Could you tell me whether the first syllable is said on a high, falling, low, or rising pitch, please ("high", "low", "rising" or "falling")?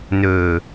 low